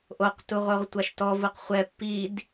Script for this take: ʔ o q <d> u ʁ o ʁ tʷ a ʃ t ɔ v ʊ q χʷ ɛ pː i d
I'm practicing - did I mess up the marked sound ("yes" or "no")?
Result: yes